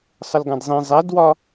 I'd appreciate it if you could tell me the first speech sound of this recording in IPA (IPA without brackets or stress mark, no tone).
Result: sˤ